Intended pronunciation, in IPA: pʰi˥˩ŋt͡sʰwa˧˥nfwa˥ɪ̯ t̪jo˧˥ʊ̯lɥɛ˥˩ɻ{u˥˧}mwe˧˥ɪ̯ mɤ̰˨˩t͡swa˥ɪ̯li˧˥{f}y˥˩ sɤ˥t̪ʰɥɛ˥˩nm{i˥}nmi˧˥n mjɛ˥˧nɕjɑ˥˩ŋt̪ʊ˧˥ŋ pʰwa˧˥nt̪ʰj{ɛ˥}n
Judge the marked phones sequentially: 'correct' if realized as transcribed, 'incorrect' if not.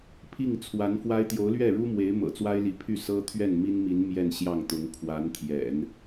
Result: incorrect: u˥, incorrect: pʰ, correct, incorrect: ɛ̰˨˩˦

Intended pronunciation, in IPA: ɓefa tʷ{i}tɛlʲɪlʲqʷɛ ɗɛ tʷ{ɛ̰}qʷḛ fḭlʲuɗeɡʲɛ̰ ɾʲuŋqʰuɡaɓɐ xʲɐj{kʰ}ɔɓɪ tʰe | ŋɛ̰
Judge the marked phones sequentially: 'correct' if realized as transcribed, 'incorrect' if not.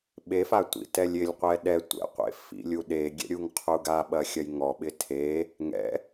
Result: incorrect: ḭ, correct, incorrect: ŋ

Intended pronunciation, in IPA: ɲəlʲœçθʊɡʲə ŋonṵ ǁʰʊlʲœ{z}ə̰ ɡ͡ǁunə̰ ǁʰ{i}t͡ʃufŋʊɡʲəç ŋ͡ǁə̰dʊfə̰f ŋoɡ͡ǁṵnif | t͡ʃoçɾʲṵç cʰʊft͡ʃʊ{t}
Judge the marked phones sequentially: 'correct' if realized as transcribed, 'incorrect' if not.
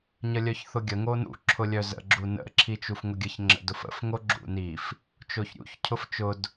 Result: correct, correct, incorrect: d

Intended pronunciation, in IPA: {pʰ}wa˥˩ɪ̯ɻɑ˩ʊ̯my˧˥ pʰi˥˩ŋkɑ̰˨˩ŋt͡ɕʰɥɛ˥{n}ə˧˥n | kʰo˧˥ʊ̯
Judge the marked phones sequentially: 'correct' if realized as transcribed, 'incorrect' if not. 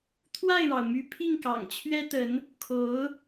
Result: incorrect: t̪ʰ, incorrect: t̪

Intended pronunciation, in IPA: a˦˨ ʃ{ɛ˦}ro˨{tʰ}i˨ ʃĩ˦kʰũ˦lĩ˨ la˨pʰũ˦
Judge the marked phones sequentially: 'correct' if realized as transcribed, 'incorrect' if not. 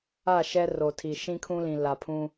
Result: correct, correct

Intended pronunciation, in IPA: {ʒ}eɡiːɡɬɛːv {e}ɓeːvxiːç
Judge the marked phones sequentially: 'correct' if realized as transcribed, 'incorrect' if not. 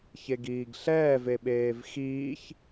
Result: incorrect: ç, correct

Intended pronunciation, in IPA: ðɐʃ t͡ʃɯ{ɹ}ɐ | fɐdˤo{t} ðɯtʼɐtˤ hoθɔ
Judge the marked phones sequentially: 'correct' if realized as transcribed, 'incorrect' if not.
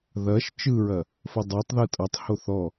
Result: correct, incorrect: tˤ

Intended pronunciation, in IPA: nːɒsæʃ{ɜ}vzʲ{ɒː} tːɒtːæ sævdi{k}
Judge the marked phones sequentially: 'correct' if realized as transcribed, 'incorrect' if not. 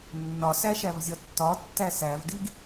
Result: incorrect: æ, incorrect: ɒ, incorrect: ɡ

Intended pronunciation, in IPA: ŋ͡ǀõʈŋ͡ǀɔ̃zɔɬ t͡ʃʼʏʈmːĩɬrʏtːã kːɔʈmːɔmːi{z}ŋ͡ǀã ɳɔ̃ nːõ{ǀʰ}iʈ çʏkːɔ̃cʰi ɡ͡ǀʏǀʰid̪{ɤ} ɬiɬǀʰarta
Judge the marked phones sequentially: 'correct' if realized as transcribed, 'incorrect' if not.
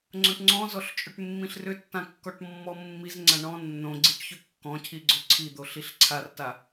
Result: correct, incorrect: ɡ͡ǀ, incorrect: o

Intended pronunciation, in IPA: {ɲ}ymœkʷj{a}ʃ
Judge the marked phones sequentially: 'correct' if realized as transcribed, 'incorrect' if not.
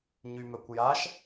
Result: correct, correct

